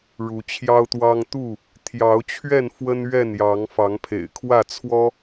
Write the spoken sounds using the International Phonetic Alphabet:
ɻu˨˦t͡ɕʰjɑ˦ʊ̯t̪wɑ˦ŋ t̪u˥˨ | t̪ʰjɑ˨˦ʊ̯t͡ɕʰɥɛ˥˨n fwə˦n ɥɛ˥˨njɑ˨˦ŋ fɑ˨˦ŋpʰḛ˨˩ɪ̯kʰwä˥˨t͡sʰwɔ˦

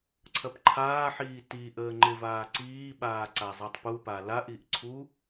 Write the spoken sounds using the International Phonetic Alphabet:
ǀʰɐpǃʰaːħiː ti ʔəːŋ͡ǃɪvaː ǀiːɓaː ǀazˤitˤpupa laʔiʔ ǀʰu

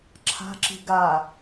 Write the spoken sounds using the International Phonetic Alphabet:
ǁʰa̤ǁi̤ ɡa

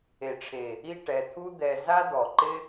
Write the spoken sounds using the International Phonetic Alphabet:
e˨ʈ͡ʂʰe˨ | i˦˨ʈɛ˨ t̪ʰu˦d̪ɛ˧ za˦d̪ɔ˨ǃɪ˦

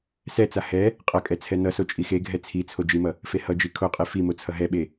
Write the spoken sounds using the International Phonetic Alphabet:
sɛt͡sa hɛ | qʼʌkʼɛ t͡sʰɛnʌso t͡ʃʼixeɡʱɛ t͡sʰit͡sʰo d͡ʒimʌ | fehʌd͡ʒi kʰoqʼe fimo t͡sʰʌɦɛɓe

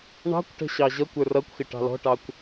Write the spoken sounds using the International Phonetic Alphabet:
ɳɑ̤kʷʈə̤ ɕɑʑʌkʷə˞ rʌkʷxɪ ʈɑ̤lɔ̤ʈɑkʷ

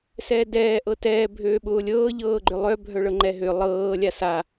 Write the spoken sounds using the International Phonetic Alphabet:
sɛːdɛː ʔɤtɛː bʱøːɓʊːlʲɤː ʎɤːɡ͡ǃølˠœ bʱœɭɤŋ͡ǃɛɦø lˠɤː lʲasa

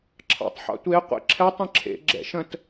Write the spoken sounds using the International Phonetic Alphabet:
ǁʰɑ̰tˤħɑ̰tʷe qʷḛǁʰɛtˤ ə̃ǁʰḛ ɡ͡ǁɛ̰ʃə̃t

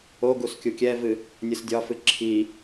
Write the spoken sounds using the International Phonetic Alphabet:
o ɡuskʲukʲɛvɨ | nʲɨsdʲɒfɨ ǁʰi

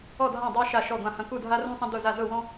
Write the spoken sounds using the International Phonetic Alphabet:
ɔ˦˨dʱã˦˨dˤa˦ ʃa˦˨ʃɔ˦˨ɡʷã˦˨hɐ̃˦ ku˦˨dʱa˦rũ˦sˤɐ̃˦ dʊ˦˨za˦˨ zʊ˦˨wɔ̃˦

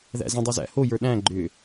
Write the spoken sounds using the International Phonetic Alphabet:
ðæ̰zə̃ dˤozæ̰ hojə˞ ɗæ̃ ɡ͡ǃʏ

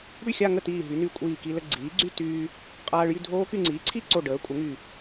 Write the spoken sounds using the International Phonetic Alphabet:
ɽy˥˩xʲa˥˧ŋə˥˩tiː˧˩ ɦy˩˥nyː˧ kʷʼiː˧˩ki˧lə˥˧ ɡ͡ǀiː˩˥ɡ͡ǀy˥˧ tyː˧ | qʼaː˧ɭjy˥˧dʱoː˦˥ky˥˧ ŋ͡ǀiː˩˥ǀʰi˥˧ǀo˧˩ ɖəː˩˥kʷʼə˩˥ŋy˧˩

